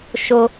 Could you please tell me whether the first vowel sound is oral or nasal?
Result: oral